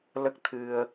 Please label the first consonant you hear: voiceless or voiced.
voiced